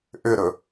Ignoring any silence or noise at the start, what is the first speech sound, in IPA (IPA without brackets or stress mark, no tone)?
ʔ